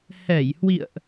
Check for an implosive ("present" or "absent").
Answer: absent